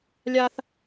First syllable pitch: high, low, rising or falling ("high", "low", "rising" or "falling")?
high